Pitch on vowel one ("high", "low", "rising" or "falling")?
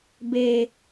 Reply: low